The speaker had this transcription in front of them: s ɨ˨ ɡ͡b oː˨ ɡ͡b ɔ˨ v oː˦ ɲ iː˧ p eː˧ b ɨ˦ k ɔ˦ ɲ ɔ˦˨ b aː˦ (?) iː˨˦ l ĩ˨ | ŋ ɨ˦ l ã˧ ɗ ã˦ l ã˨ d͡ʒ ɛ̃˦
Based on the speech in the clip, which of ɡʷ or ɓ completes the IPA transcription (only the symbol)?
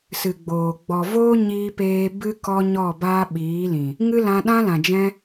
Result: ɓ